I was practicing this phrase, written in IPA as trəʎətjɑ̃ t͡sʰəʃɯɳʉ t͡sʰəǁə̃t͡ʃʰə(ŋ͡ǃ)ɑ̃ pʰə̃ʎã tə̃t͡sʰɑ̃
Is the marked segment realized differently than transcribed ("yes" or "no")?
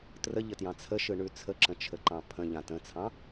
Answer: yes